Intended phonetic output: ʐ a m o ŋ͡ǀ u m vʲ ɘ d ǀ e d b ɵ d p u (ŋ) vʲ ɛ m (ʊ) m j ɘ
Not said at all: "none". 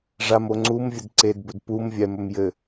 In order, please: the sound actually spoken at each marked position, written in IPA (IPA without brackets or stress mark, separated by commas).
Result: m, ɵ